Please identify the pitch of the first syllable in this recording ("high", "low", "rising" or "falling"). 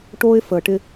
high